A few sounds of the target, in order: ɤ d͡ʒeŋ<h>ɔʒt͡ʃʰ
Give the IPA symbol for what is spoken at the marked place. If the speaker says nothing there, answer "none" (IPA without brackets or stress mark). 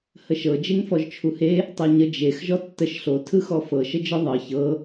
f